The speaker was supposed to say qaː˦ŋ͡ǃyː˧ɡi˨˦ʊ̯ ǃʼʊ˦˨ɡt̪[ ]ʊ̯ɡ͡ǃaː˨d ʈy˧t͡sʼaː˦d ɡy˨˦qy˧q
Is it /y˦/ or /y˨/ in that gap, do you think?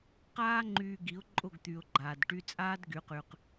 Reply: y˨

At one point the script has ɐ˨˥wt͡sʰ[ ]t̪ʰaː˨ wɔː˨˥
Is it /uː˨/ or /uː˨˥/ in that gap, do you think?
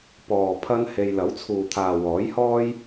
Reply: uː˨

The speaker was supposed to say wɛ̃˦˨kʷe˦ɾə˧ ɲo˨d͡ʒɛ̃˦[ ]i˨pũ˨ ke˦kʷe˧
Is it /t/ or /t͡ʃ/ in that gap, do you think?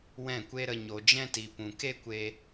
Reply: t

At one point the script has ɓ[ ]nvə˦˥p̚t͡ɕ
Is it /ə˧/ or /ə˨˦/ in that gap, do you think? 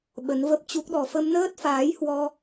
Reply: ə˨˦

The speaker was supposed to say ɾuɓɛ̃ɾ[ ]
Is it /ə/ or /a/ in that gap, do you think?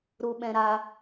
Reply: a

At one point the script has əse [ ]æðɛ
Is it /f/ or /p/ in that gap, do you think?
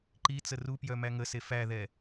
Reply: f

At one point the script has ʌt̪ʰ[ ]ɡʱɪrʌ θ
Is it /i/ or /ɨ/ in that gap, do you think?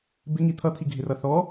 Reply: i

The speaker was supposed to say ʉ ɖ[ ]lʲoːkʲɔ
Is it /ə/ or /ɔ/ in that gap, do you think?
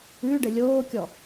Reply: ə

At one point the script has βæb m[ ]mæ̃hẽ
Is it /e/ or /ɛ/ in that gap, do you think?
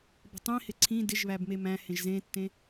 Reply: e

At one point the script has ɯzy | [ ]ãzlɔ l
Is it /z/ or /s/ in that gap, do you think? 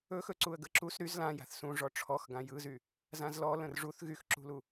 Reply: z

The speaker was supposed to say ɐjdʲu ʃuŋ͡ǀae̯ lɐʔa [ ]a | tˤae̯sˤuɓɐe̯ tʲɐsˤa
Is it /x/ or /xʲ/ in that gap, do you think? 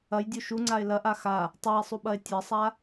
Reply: x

